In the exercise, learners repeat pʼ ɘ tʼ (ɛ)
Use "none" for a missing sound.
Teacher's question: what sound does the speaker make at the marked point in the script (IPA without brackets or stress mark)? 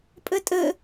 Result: ɘ